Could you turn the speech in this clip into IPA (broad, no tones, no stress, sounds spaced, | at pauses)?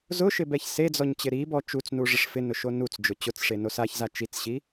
z ʊ ʃ ɪ b ɛ ç s e d͡z ɔ ɲ t͡ɕ ɪ ɾ i b ɔ t͡ʃ u t͡s n u ʐ ɪ ʂ f ɪ n ʊ ʃ o n u t͡s d͡ʒ ʊ t͡ɕ ʊ t͡s ʂ e n o s a ç z a t͡ʃ i t͡s ɕ i